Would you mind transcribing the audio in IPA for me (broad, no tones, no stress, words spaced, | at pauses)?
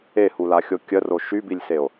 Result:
ehulaxʲo kʲəro ʃybilʲseo̯